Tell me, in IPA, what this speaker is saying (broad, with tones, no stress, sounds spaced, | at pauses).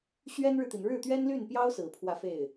ɕ ɥ ɛ˥ n ɻ ɻ̩˨ t̪ i˩ n ɻ ɻ̩˥˩ t̪ ɥ ɛ˥ n l y˥˩ n p j ɑ˥ ʊ̯ s ɹ̩˨˩ pʰ w ä˥˧ f e˥˩ ɪ̯